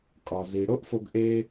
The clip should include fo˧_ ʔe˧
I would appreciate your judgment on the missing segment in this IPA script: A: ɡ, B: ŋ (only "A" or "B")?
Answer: A